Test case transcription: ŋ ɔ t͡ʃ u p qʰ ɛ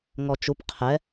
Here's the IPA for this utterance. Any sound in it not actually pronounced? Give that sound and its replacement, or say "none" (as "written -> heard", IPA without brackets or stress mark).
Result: none